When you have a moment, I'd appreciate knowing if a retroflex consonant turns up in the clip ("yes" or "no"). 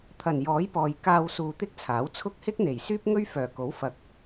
no